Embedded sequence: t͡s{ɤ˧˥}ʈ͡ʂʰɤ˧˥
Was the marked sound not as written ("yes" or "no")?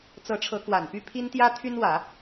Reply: no